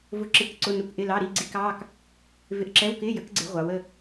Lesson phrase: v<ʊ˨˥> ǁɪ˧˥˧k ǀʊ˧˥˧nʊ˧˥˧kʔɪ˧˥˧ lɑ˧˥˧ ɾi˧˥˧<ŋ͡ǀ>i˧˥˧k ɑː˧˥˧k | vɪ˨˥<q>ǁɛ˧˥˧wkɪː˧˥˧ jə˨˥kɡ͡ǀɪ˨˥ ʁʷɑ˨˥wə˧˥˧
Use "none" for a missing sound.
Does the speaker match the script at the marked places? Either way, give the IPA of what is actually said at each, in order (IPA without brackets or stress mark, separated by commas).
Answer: ʊ˧˥˧, ɡ͡ǀ, ʔ